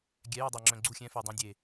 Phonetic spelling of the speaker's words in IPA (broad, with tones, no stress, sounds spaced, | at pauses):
ɡʲ ɛ˨˦ j y˨ dˤ a˨ ŋ͡ǁ œ̃˨ ɡ͡ǀ u˦˨ xʲ ɛ̃˨˦ f e˨ dˤ ã˦ dʲ e˨